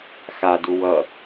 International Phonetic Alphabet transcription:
x a d u w ʌ

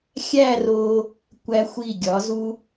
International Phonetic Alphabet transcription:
xʲ æ˥˧ r o˧ | kʷ æ˧ xʷ i˧˩ ɡʲ ɒ˩˧ z u˧

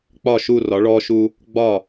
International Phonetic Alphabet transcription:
k͡p ɒ˧˩ ʃ u˧˩ r ɒ˩˧ ɭ ɔ˧ ʃ u˧ | ɡ͡b ɒ˧˩

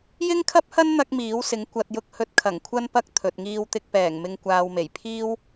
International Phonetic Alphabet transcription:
j ɪ˥ ŋ kʰ ɐ˥ p̚ h ɐ˥ n n̪ ɐ˥ k̚ m iː˨˥ w s ɪ˨˥ ŋ kʷ ɐ˧ t̚ j ʊ˥ k̚ h ɵ˥ t̚ kʰ ɐ˨˩ ŋ kʷʰ ɐ˥ n p ɐ˥ k̚ t̪ʰ ɵ˨ t̚ ŋ iː˥ w t̪ ɪ˥ k̚ p ɛː˨˩ ŋ m ɪ˧ ŋ kʷ aː˧ w m e˨˩ j pʰ iː˥ w

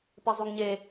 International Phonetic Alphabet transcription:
p e zˤ u ŋ ɲ e

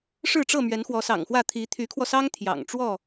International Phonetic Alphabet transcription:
ʂ ɻ̩˥˨ ʈ͡ʂ ɤ˥˨ m ɥ ɛ˨˦ n x w ɔ˨˦ s ɑ̰˨˩ ŋ x w ä˥˨ t̪ʰ i˨˦ t̪ʰ y˨˦ kʰ w ɔ˧ s ɑ˦ ŋ t̪ʰ j ɑ̰˨˩ ŋ ʈ͡ʂ w ɔ˥˨

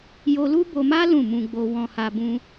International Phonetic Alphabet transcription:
j o˧ l u˦ b o˧ m a˦ l ũ˦˨ m ũ˧ ɡ͡b o˧ w ɔ̃˧ h a˧ b ũ˦

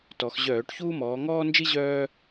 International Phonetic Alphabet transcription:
t ɔ˩˧ x ʑ œː˧˩˧ ʈ ç uː˥ m ɔː˩˧ ŋ ɔː˥ n d͡ʒ i˥ ʑ œː˥

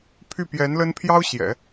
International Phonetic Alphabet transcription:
pʰ y˥˩ p j ɛ˧˥ n l ə˥ n pʰ j ɑ˥ ʊ̯ ɕ j ɛ̰˨˩˦

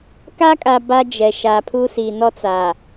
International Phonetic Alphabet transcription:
k a˦ kʼ a˨ b a˦ d͡ʒ ɛ˨ ʃ a˨ pʰ u˦ s i˨ n ɔ˦ t͡s a˨

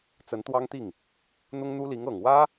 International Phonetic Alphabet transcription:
t͡s ə˧˥ n t̪ w ɑ˥ ŋ t̪ i˥˩ ŋ | n̪ ʊ˥ ŋ n̪ u˥ l i˧˥ ŋ ɤ˨˩ ŋ w ä˥

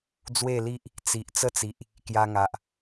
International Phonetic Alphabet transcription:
d͡z w e˥˧ l i˦ ʔ | t͡s i˨ ʔ t͡s ə˦ t͡s i˨ ʔ | k j a˧ ŋ a˨ ʔ

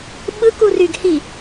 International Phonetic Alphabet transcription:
ɓ ɯ k u r y ɡ h i

